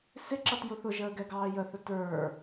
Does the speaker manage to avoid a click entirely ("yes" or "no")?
no